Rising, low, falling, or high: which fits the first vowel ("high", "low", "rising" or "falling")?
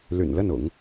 low